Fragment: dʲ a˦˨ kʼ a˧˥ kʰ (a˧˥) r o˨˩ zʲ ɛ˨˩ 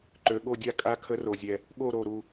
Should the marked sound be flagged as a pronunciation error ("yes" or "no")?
yes